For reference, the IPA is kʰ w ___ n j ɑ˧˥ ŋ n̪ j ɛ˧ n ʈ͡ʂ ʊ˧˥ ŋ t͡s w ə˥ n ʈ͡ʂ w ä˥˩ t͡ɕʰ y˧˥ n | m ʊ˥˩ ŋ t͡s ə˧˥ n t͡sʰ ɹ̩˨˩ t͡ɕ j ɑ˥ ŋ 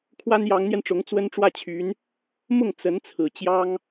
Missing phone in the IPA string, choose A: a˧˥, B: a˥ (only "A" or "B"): B